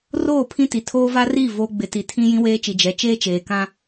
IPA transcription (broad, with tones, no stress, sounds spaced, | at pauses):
r oː˦˨ pʰ ĩ˦ t i˨ tʰ oː˦ v a˦ r i˦˨ v o˦ ɡ͡b ɪ˨ t i˨ tʰ ĩ˦ j ĩ˦ w eː˦ t͡ʃ i˨ d͡ʒ ɛ˨ t͡ʃ eː˦ t͡ʃ eː˨ k ã˦